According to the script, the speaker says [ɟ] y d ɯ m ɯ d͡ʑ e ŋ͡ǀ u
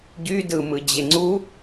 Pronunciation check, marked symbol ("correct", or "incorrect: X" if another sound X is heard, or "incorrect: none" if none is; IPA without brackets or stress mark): correct